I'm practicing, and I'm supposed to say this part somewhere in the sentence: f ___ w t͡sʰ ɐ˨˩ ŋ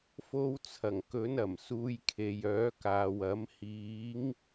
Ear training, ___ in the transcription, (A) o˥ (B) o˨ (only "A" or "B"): A